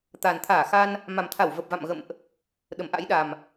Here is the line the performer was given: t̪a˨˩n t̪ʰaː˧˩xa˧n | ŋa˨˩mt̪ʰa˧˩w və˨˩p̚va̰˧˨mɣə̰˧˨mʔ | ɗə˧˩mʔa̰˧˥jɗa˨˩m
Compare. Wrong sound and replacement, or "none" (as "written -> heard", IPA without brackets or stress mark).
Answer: ŋ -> m